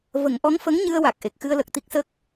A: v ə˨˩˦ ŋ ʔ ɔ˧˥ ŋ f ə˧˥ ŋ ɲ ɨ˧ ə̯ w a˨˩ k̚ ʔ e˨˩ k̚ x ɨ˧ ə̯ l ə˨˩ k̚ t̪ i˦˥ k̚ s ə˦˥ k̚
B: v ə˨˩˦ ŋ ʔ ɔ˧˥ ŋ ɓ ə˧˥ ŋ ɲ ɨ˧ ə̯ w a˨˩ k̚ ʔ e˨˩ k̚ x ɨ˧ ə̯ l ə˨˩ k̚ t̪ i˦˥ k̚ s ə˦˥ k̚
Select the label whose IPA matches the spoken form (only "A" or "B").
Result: A